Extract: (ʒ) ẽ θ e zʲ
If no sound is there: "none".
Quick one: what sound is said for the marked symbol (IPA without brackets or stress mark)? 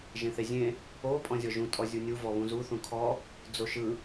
ʒ